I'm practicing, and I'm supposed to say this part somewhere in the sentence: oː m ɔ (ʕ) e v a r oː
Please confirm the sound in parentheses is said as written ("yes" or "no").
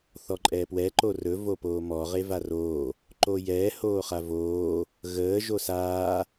no